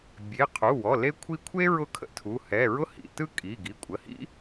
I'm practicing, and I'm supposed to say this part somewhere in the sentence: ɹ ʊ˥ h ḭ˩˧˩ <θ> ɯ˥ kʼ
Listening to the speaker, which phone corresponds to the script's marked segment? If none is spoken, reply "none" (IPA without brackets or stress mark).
t